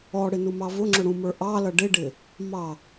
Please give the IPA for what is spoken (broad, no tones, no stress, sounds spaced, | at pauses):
ɔ ɽ ɪ n u m ɑ v ʊ ŋ͡ǁ ʊ ɽ ũ m ə˞ ʔ ɑ l ʌ ɖ ɪ ɖ ɪ | m ɑ